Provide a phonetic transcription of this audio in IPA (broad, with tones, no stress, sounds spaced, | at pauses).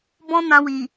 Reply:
b ɔ̃˦ n ã˧ w i˨